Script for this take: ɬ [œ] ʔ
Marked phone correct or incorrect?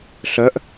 correct